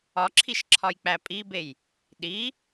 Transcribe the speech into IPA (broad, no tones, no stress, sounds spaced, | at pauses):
ɒ ǁʰ i ʃ ǁʰ ɒ j k͡p æ pʼ i b e j | ɗ i